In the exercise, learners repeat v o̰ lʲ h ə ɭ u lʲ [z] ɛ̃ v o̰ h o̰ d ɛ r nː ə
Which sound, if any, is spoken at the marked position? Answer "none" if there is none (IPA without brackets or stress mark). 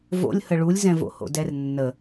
z